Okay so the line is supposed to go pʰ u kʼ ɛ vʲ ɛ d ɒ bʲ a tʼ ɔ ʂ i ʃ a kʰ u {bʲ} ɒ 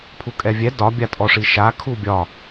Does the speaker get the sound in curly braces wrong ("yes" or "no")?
no